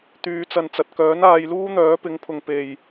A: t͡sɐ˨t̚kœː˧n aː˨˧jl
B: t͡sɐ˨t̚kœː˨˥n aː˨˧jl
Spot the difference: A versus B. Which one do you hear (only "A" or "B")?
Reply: B